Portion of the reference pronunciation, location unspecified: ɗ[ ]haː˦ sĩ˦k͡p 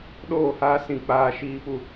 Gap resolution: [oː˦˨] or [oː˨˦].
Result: oː˦˨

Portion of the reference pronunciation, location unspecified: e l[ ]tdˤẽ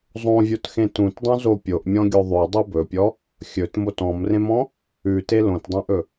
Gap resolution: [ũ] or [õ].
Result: õ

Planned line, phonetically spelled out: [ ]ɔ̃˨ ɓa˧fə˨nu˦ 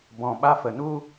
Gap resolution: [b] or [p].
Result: b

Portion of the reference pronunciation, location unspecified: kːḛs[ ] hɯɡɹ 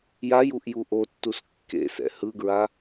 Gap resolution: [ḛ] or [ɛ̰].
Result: ɛ̰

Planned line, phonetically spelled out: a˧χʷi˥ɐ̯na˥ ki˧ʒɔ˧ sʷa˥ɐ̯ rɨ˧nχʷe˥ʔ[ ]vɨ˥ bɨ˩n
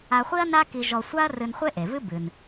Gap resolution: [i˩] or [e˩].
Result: e˩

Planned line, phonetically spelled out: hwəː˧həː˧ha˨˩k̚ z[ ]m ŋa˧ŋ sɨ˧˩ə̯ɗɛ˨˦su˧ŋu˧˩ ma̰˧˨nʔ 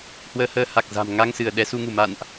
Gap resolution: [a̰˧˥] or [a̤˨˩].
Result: a̤˨˩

